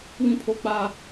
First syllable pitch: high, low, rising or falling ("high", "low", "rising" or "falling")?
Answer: high